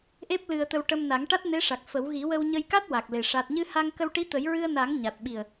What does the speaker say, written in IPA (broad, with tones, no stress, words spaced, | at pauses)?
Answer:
ʔe˦˥p̚lɨ˧ə̯t̪ə˧wʈə˧m na˨˩˦ŋʈa˦˥t̚ne˧˥ʂa˨˩k̚ fə˨˩˦w ɣi˨˩˦wə˧wɲə˧jka˦˥t̚ wa˨˩k̚le˨˩ ʂa˨˩t̚ɲɨ˧ha˧ŋ kə˧wʈi˧˥t̪ə˨˩˦j ɹɨ˧ə̯na˨˩˦ŋ ɲa˨˩t̚ɓi˨˩ə̯